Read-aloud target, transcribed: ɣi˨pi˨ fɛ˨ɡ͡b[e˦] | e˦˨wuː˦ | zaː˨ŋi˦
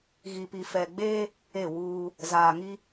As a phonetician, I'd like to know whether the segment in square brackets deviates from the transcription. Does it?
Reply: yes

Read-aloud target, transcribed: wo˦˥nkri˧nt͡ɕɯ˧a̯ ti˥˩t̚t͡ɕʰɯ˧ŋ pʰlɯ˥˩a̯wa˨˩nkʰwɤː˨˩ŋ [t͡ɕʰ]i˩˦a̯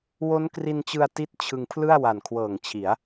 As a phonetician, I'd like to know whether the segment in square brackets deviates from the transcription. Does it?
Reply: no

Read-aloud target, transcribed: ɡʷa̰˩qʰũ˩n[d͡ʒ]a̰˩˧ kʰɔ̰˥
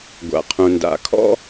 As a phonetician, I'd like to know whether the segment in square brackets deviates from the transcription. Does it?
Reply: yes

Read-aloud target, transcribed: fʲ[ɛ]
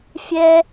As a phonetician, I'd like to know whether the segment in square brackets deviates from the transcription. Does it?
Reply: no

